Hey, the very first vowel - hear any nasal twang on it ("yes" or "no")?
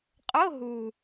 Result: no